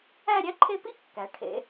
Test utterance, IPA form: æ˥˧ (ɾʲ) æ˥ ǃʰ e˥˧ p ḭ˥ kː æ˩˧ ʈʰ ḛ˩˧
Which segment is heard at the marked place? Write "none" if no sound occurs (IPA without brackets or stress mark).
ɾʲ